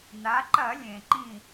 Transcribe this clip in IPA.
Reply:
n̪ a˩˧ ǃ ɐ˧˩˧ lʲ ẽ˩ ǃ ĩ˧˩

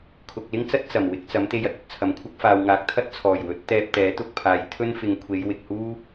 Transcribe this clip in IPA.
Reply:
kʰ ʊ˨ k̚ l ɪ˥ ŋ t͡s ɐ˥ t̚ t͡s ɐ˨˩ m w ɪ˧ k̚ t͡s ɐ˨˥ m t̪ e˧ j ɐ˥ t̚ ɵ˧ t̚ t͡sʰ ɐ˨ m kʷʰ ɐ˥ k̚ f aː˨ w ŋ aː˨˥ k̚ t̪ʰ ɐ˥ t̚ t͡sʰ ɔː˨˩ j w ɵ˨˥ t̚ t̪ ɛː˧ p̚ t̪ ɛː˨˥ t̪ ʊ˧ k̚ pʰ aː˨ j t̪ʰ ɵ˥ n f ɪ˨˧ ŋ kʷʰ e˨˧ j w ɪ˨ k̚ h uː˥

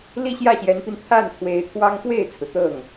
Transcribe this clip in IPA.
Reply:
l i˥˧ ɕ j ä˥˩ ɕ j ɛ˧˥ n p i˧ n t̪ʰ a˥˩ n t̪ʰ w e˧˥ ɪ̯ t̪ʰ w ɑ˥ ŋ k w e˥˩ ɪ̯ t͡sʰ ɹ̩˩ t̪ ɤ˥˩ ŋ

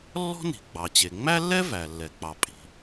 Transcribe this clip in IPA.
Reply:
lː ɔ̤˥ n i̤˩ ɡ͡b ɑ˩ t͡ɕ e˩ ŋ͡m æ˥ lː ɛ˥ v æ˩ lː ɛ˩ k͡p ɑ˩ pʼ i̤˩

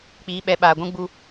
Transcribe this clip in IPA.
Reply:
k͡p iː˨˦ ɓ ɛ˨˦ ɓ aː˨ ɡʷ ũ˦ ɡ͡b u˦

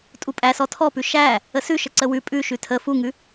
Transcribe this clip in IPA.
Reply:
tʼ u pʼ æ s ɔ tʰ ɔ p ʉ ʃ æ | ə s ʉ ʃ ə ǀ ə w ʉ pʼ ʉ ʃ ʉ tʰ ə f u ŋ ʉ

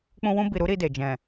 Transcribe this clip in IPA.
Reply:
k͡p ũ˧ w ũ˧ b i˨ ɾ u˨˦ ɾ i˧ d e˨ d͡ʒ ɛ̃˨

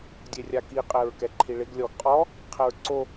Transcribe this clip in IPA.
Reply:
dʲ e rʲ a k i qʼ ɛ ɹ k ɛ ǃʰ i ɭ ɪ ɡ lʲ ɔ ɡ qʼ ɔ | qʰ ɛ ɹ ǀ o

